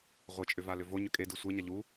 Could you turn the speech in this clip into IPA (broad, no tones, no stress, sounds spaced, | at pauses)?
ʁʷ ɪ t͡ʃʼ ʏ v a l ʏ v o ɲ ʏ kʼ e d ɨ sʷ e ɲ a ʎ u